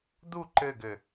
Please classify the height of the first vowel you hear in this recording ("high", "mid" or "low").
high